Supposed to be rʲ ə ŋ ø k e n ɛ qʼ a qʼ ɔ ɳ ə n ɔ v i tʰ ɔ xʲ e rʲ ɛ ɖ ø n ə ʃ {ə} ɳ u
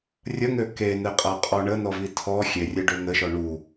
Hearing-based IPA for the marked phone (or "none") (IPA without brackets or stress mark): ɔ